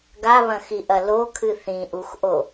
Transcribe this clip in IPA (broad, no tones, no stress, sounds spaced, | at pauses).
ɡ a β ɐ̃ x i ʔ ɐ l o kʰ ɨ θ ĩ ʔ u x ʔ o